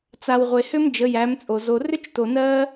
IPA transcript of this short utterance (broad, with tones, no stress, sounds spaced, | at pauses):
t͡s a˨ w ʁʷ e˨ h ʏ˦ m d͡ʒ ə˨˦ j æ˨˦ m t͡sʼ o˨ z o˧ r ʏ˦ t͡ʃ t o˨ n ɜ˦